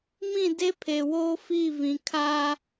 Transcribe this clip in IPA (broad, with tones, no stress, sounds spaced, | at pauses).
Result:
m ĩ˦˨ d e˦ pʰ e˨ w oː˦ f iː˦˨ v ĩ˨ kʰ a˦